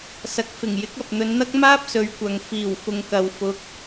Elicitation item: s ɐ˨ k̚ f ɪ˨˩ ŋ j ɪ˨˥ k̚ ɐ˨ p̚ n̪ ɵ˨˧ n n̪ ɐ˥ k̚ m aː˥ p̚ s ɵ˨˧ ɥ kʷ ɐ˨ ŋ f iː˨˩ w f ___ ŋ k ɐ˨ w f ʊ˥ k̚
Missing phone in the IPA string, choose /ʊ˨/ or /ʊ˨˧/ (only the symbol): ʊ˨